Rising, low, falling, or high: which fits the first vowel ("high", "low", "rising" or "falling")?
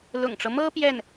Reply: low